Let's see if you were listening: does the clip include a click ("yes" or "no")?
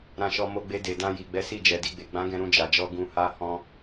no